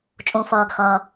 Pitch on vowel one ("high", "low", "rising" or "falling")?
high